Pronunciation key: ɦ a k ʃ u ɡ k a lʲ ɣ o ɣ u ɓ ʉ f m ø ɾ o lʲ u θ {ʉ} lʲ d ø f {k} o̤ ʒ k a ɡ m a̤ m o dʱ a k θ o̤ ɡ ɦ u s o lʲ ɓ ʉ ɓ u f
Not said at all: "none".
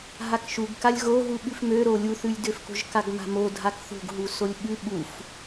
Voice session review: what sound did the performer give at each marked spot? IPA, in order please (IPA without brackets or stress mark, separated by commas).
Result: ʉ, k